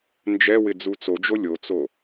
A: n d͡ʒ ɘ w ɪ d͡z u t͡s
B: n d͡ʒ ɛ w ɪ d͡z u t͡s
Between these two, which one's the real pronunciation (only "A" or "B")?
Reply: B